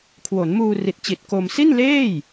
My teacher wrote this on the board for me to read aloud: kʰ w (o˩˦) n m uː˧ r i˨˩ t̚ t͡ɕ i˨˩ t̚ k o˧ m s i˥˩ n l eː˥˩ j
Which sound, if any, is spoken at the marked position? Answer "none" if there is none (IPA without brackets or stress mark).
o˩˦